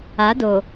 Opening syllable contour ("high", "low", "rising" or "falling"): rising